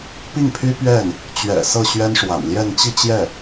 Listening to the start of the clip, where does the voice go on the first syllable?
falling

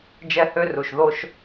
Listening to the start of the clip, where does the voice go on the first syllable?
high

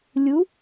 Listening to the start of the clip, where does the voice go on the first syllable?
rising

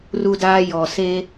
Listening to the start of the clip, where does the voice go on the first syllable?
high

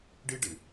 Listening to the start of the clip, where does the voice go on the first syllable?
high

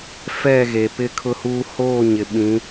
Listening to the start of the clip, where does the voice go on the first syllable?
falling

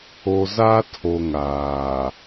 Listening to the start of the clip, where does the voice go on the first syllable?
low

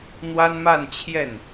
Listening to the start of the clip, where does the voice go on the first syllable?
high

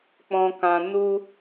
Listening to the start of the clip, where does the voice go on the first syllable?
low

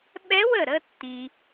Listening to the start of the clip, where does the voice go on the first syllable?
rising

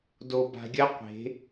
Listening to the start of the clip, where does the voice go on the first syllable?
low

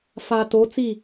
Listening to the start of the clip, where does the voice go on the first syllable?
low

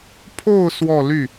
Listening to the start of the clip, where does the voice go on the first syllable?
falling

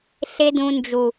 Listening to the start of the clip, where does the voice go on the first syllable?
high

